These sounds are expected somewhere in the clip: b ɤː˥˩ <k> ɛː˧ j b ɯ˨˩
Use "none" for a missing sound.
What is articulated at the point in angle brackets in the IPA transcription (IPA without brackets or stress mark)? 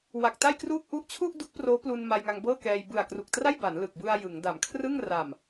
k